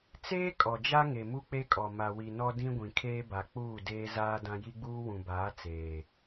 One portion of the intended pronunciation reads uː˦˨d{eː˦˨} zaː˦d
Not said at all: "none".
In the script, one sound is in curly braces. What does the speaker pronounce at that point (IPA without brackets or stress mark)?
eː˦